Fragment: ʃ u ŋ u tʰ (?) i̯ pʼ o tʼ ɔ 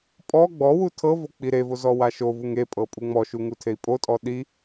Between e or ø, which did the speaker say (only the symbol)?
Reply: e